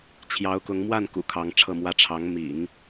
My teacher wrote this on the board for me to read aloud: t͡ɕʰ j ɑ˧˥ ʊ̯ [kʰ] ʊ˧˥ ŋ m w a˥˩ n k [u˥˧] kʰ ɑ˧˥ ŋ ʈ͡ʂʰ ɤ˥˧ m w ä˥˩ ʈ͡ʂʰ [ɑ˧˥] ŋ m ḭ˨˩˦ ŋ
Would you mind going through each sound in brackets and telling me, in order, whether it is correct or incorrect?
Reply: incorrect: k, incorrect: ṵ˨˩, correct

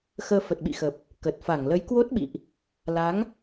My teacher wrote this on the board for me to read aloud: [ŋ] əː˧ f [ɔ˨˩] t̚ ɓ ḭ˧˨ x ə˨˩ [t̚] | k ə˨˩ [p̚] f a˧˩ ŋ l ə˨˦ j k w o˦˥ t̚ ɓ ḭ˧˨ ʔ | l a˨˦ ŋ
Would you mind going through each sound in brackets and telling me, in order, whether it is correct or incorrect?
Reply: incorrect: x, incorrect: ə˨˩, incorrect: p̚, incorrect: t̚

